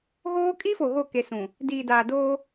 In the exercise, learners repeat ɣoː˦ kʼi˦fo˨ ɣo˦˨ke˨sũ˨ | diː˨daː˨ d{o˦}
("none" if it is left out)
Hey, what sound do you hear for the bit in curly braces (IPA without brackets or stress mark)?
oː˦